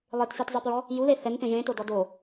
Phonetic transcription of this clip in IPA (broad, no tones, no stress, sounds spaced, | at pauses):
lˠ e t s i t zˤ ɛ p ɹ ɔ | j u ð e θ ɛ n p ẽ ʒ ẽ t o d ɔ d o